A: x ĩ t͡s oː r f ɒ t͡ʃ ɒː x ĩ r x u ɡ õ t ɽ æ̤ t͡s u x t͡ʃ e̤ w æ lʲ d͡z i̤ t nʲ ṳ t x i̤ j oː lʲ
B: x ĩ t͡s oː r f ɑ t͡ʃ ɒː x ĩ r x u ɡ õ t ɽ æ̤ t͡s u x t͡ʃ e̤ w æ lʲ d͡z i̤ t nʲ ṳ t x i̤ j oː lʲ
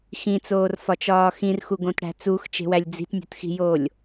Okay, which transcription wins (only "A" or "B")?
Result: A